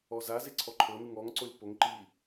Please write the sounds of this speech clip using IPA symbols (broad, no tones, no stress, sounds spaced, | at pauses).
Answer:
ɔ z a z e ǀʰ ɔ ǃʰ ɤ n ɯ ŋ ɔ ŋ ǀ o lʲ p o ŋ ǃ i